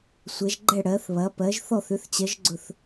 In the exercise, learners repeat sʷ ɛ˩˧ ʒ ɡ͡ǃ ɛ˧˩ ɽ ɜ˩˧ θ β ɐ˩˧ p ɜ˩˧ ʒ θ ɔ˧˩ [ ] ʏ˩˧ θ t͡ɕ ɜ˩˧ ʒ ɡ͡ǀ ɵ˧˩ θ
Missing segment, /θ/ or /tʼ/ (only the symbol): θ